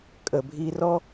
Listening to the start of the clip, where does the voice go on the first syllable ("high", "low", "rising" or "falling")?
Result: low